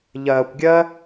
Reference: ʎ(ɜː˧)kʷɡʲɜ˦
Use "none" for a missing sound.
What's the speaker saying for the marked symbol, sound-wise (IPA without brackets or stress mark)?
ɜː˧